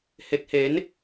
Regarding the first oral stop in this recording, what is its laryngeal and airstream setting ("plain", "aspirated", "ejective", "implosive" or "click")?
plain